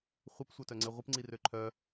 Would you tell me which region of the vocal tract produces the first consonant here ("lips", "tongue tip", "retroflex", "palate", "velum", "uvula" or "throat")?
uvula